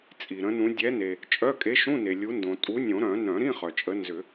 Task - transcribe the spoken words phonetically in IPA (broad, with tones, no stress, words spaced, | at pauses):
t͡sʼi˩ɾə̃˨˦nũ˨˦ dʲɛ˨˦ne˩ | t͡ʃʼœ˧˥˧ kʼe˨˦ʃũ˧˥˧ne˩ lʲu˨˦ ndõ˩ tʼu˨˦ nʲõ˨˩˦ɾœ̃˨˩˦ nœ̃˨˩˦ɾĩ˧˥˧χœ˩t͡ʃʼə˨˦ nzʏ˨˩˦